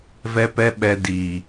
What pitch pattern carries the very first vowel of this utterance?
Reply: high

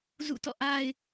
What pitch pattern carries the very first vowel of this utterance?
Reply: falling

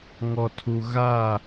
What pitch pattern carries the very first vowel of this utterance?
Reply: low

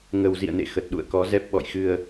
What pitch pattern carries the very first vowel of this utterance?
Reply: low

